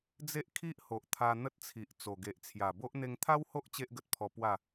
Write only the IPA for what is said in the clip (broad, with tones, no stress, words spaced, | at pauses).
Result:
d͡ze˦ʔ kʰi˦ʔho˨ʔ t̪ʰa˧n̪ə˦t̚t͡sʰi˨ʔt͡so˨˩ ɡe˨ʔt͡sʰja˨˩bo˦ʔ n̪e˧ŋt̪ʰa˦who˦ʔ t͡ɕe˦ʔɡə˨t̚pʰɔ˧pwa˥˧